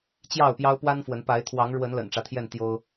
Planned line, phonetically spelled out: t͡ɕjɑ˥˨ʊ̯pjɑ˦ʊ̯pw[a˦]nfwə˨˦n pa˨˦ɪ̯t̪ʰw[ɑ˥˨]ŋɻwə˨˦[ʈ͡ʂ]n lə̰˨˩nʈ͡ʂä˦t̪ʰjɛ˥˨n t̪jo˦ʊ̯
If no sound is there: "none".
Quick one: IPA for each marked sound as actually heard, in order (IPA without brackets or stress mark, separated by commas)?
a˦, ɑ˨˦, none